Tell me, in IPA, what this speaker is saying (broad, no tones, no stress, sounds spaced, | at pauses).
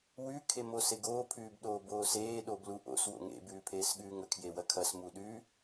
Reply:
w ʉ kʰ e m o s e ɡ oː pʰ ʉː b ɗ oː b oː s eː ɗ oː b l u ʔ o̰ s w o̰ ŋ ḛ b ʉː pʰ eː s ɠ ʉː ŋ ɵ kʰ j e w ɐ kʰ ɐ s m u ɗ ʉ